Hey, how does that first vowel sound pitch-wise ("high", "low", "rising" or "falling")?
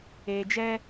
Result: low